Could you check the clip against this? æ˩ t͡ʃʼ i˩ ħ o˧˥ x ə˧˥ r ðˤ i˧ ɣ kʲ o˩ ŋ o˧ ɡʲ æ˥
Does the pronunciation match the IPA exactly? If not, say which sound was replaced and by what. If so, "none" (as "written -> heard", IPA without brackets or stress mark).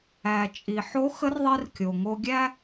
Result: ɣ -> r